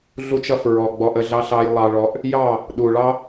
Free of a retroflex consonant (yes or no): no